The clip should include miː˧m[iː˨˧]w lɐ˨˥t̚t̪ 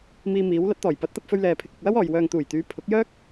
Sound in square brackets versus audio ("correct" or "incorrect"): correct